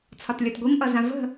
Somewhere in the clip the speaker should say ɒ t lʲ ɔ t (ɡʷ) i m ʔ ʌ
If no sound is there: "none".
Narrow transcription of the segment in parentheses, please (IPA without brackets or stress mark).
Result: ɡʷ